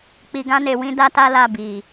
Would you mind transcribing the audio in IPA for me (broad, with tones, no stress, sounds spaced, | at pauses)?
k͡p i˨ ɡ ã˧ n e˨ w ĩ˧ d a˦ t a˦ l a˦˨ b i˨